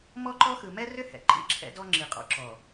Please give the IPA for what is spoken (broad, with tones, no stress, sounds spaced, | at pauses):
m ɔ˦ ǃ ɔ˦ x ɯ˨ m ɛ˦ r ʏ˦ h ɛ̰˨ ǃ ḭ˦˨ ǁʰ ɛ̰˦ d ɔ˦ ŋ͡ǁ i˨ qʼ ɔ̰˦ ǁ ɔ˨